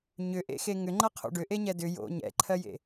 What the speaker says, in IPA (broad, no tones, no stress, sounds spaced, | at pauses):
ɲ ʏ ʔ ḛ x e ŋ ʏ ŋ͡ǃ ʌ qʰ o̰ ɖ ʏ ʔ e ɲ ɛ d ʏ j o̰ ɲ ɛ̰ ǃʰ ɜ j ḛ